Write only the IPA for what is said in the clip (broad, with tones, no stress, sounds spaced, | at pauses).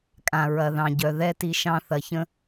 kʼ ã˨ ɹ ɐ˨ ð ɑ̃˨ ɟ œ˨ ð ɛ˦ t i˧ ʃ ɑ̃˦ θ ɐ˨ ç ə̃˦